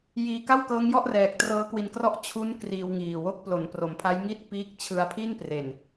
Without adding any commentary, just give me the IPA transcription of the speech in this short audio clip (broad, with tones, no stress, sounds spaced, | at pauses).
j iː˧ k a˥˩ w k ɤː˦˥ ŋ j ɔ˥˩ ʔ r ɛː˨˩ k̚ t r ɤː˦˥ k w i˧ n k r ɔ˥˩ ʔ t͡ɕʰ u˦˥ n k r iː˧ w ŋ iː˨˩ w o˥˩ k̚ p l o˩˦ n p r o˩˦ m pʰ a˦˥ j ŋ i˥˩ t̚ p iː˦˥ k̚ t͡ɕʰ ɯ˧ a̯ pʰ i˥˩ n p r e˨˩ n